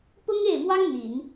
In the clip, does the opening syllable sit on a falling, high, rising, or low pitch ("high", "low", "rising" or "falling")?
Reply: high